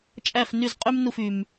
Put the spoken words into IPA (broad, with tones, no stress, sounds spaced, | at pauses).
t͡ʃʼ æ˥˩ f n y˥˩ z qʼ y˥ m n u˥˩ f y˩ m